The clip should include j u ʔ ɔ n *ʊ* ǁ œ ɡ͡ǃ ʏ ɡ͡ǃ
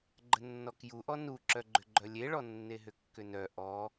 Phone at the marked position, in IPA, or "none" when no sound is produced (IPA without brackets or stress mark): u